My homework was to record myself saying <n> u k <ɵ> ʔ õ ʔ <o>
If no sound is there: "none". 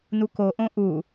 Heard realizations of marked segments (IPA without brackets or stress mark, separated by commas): n, o, u